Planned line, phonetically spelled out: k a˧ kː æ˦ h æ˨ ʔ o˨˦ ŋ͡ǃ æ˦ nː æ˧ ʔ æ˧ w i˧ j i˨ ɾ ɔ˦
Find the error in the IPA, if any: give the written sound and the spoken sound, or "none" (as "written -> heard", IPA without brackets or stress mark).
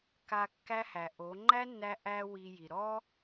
none